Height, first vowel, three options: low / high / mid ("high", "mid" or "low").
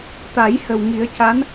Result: low